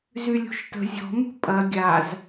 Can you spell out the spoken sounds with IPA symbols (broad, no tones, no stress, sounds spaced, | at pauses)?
z y lʲ ṳ ʃ t ə̤ zʲ ɔ̤ m ṳ pʼ ɐ ɡʲ a z